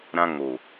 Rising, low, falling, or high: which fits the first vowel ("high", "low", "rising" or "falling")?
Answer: high